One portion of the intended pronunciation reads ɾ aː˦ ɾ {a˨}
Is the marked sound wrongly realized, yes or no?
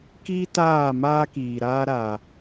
no